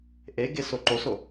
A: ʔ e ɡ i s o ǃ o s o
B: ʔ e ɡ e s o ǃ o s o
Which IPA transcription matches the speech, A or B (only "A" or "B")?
B